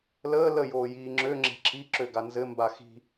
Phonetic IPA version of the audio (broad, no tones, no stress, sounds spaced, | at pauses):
l əː l ə j oː j iː ŋ͡ǁ ø ŋ͡ǁ e̤ ǁʰ i ǁ ø ɡ a n z ɘ m b a x i̤